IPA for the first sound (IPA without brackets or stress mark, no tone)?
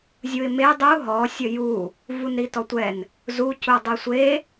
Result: zʲ